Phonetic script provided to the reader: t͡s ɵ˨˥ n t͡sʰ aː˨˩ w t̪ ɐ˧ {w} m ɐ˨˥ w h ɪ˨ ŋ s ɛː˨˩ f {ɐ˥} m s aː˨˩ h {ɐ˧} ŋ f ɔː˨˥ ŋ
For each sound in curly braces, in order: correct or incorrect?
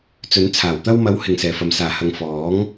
correct, incorrect, incorrect

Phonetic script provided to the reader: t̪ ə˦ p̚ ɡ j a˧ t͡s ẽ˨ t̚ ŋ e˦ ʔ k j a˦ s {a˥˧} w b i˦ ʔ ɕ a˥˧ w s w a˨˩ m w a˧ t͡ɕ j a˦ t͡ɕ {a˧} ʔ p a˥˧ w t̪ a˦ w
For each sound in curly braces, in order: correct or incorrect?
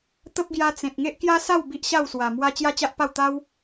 correct, incorrect

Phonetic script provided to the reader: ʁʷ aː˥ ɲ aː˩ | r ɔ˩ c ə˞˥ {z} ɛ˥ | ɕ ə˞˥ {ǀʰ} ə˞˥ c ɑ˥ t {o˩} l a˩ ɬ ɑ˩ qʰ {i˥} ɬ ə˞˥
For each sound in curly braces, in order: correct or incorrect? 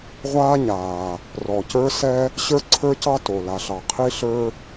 incorrect, correct, correct, correct

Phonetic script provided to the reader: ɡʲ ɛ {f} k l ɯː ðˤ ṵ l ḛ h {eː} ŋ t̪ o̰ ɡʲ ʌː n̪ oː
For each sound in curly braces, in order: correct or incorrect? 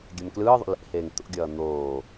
incorrect, correct

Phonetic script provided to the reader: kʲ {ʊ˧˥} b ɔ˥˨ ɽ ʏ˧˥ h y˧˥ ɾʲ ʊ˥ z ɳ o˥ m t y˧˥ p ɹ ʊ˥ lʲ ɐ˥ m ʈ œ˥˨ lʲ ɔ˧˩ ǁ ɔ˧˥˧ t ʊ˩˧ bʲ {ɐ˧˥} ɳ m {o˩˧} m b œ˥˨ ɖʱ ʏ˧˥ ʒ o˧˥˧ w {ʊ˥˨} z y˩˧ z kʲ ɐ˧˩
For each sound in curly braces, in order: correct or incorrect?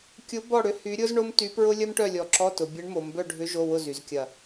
correct, correct, correct, correct

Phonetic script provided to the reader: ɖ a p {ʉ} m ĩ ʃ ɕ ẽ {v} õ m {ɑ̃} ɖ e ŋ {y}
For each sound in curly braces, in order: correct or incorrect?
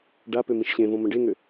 incorrect, correct, incorrect, incorrect

